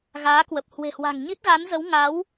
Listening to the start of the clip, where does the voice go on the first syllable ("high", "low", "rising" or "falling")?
rising